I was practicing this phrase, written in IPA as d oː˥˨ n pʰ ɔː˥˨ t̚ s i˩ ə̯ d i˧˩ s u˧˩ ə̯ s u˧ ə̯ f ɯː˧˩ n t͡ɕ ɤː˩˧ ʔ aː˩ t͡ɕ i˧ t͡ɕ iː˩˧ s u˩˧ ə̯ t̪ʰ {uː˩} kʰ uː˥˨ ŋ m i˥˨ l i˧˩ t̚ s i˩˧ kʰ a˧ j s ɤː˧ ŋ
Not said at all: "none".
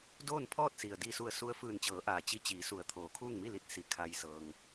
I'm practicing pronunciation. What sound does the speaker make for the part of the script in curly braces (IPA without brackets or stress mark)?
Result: oː˩